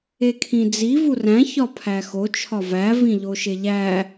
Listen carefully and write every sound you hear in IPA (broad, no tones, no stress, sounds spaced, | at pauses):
e kʰ ĩ d͡z i v u r æ̃ ç ɒ pʰ æ x o t͡ʃʰ ɒ v æ v ĩ ʎ o ʃ e ʎ æ